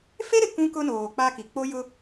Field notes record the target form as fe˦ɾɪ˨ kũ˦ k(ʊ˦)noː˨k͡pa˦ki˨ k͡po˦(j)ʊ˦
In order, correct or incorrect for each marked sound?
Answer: correct, correct

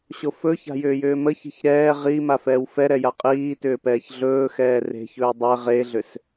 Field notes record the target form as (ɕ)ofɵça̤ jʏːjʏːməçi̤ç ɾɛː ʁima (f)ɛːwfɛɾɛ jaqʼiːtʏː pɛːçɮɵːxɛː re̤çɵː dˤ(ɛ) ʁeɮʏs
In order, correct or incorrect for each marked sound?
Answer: correct, correct, correct

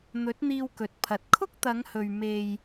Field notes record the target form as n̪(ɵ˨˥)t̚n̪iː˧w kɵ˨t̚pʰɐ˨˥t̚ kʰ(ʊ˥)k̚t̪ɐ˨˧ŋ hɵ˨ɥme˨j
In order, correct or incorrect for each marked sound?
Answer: correct, correct

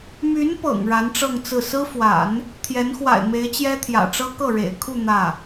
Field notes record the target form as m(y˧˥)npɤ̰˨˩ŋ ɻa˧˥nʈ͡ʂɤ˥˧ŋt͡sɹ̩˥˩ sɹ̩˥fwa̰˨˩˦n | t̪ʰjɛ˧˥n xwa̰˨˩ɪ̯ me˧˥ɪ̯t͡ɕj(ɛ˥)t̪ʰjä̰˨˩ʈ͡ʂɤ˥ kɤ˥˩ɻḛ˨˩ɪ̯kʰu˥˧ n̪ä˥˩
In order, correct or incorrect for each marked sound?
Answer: correct, correct

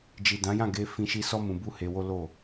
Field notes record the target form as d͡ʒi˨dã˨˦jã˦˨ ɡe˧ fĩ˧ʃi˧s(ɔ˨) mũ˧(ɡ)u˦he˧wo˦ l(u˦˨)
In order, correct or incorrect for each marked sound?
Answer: incorrect: ɔ˦, incorrect: b, incorrect: o˦˨

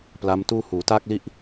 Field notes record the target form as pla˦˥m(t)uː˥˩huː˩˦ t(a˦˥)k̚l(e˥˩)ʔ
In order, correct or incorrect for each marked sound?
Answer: correct, incorrect: a˥˩, incorrect: i˥˩

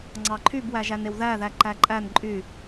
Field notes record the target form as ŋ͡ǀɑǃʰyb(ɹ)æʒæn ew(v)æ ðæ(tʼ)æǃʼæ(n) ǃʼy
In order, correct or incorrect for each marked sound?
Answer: incorrect: w, incorrect: ð, incorrect: ǃ, correct

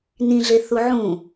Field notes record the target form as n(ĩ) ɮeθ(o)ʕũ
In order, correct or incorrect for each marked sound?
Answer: correct, incorrect: u

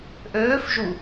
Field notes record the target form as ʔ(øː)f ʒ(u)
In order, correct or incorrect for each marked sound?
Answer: correct, correct

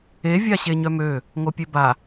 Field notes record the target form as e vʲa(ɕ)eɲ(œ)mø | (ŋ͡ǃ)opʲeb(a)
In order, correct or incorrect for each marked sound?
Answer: correct, correct, incorrect: ŋ, correct

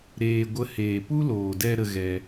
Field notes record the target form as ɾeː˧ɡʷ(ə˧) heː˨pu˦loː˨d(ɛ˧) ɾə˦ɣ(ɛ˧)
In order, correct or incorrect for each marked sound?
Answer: incorrect: ə˦, correct, correct

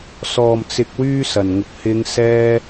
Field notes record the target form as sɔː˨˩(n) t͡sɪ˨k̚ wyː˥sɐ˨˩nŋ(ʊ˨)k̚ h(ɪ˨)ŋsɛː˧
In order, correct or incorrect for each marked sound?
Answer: incorrect: m, correct, incorrect: ɪ˨˧

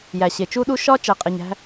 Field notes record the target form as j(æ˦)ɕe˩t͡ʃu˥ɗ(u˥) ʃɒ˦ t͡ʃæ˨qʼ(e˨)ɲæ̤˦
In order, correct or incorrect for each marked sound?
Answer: incorrect: æ˩, correct, incorrect: e˩

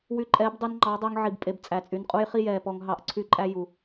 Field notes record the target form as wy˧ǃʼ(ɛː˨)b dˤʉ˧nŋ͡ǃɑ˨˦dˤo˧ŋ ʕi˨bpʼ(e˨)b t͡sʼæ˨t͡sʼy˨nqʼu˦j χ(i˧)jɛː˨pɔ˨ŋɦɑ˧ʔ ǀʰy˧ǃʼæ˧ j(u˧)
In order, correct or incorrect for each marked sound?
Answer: incorrect: ɛː˨˦, correct, incorrect: i˦, incorrect: u˨

